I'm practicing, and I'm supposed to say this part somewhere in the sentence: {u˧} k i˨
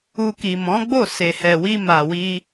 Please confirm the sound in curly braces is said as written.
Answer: yes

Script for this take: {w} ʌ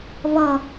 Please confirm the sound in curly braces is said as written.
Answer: no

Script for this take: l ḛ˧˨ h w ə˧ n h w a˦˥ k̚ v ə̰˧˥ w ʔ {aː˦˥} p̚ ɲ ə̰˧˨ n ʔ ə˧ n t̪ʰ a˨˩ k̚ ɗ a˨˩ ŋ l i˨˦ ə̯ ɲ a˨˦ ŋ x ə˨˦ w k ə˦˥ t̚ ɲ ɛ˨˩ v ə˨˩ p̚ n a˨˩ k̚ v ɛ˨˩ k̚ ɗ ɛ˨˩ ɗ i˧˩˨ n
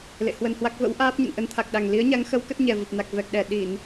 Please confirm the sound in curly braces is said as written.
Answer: yes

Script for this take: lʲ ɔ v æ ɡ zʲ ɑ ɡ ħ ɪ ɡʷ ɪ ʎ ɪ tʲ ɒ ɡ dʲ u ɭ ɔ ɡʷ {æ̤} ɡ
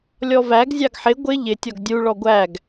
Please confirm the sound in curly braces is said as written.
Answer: no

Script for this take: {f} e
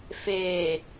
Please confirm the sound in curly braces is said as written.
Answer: yes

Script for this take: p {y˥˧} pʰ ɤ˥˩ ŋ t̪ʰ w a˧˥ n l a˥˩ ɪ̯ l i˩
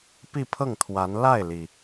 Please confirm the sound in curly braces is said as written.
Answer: no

